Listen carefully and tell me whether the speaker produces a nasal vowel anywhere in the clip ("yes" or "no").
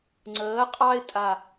no